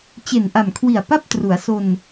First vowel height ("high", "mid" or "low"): mid